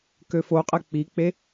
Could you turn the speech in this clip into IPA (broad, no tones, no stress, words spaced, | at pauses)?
køfoqʼɛ k͡pik͡pe